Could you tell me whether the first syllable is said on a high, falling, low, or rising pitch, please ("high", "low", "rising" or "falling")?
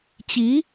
rising